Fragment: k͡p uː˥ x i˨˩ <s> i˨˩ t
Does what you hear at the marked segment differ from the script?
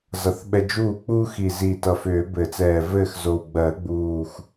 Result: yes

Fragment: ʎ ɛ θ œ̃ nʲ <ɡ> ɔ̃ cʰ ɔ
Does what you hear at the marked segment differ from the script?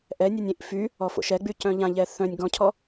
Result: no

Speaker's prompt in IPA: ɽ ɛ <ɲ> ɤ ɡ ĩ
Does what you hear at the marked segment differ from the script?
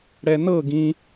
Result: yes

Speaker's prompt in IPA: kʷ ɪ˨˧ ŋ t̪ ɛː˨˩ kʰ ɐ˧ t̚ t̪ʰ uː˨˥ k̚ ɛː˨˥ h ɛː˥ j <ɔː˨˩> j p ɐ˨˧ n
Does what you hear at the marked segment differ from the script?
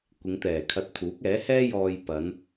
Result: yes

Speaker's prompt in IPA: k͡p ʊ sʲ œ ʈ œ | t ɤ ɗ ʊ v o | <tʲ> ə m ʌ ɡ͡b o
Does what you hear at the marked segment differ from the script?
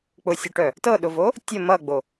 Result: no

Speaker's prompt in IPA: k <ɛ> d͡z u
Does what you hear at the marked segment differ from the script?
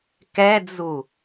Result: no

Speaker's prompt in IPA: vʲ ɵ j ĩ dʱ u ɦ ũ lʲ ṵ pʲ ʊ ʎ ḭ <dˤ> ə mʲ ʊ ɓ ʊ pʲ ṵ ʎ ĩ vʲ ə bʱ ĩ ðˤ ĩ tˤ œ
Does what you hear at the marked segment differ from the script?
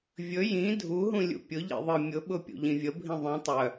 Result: yes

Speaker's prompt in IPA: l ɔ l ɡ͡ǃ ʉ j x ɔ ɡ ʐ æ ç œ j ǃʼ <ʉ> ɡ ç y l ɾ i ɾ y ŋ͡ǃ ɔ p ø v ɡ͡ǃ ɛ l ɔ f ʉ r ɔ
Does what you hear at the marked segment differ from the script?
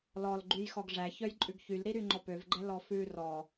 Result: no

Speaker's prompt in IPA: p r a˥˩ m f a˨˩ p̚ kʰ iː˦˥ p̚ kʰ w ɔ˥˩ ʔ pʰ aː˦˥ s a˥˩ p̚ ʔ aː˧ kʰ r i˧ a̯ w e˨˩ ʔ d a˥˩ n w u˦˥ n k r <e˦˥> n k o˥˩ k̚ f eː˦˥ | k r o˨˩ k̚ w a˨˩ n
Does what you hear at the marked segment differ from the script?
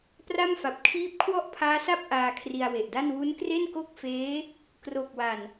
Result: yes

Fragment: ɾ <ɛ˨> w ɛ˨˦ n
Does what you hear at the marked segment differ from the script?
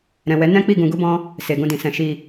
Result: yes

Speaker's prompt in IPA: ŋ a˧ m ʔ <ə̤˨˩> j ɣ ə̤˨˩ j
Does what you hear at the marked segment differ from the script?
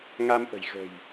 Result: no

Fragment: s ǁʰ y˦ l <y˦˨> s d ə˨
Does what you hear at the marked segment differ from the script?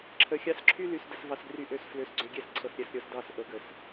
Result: yes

